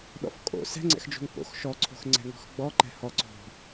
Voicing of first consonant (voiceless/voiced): voiced